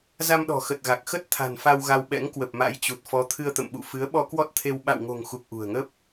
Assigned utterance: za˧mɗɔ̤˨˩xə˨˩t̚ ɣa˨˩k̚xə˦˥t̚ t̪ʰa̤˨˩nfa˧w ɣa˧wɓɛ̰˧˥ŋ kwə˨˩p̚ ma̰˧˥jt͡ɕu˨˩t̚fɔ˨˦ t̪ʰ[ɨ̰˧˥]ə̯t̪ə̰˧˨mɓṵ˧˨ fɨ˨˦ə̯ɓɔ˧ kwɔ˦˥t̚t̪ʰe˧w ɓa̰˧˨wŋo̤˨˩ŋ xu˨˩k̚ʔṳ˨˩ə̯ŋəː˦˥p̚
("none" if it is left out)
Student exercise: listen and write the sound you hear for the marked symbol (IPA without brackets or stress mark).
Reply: ɨ˧